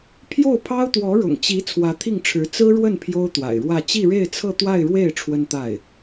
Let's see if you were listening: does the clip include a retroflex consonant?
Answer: yes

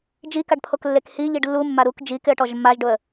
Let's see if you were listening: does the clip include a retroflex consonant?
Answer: yes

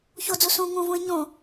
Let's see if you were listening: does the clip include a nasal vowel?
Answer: yes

